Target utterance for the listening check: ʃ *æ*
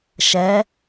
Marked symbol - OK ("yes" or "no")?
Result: no